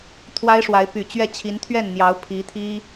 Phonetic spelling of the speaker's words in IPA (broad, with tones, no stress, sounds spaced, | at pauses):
t̪ʰ w a˥ ɪ̯ ʂ w a˧˥ ɪ̯ p y˨˩ t͡ɕ ɥ ɛ˥˩ t͡ɕʰ i˧˥ n t̪ʰ ɥ ɛ˥˩ n n̪ j ɑ˧˥ ʊ̯ pʰ i˧˥ t̪ʰ i˥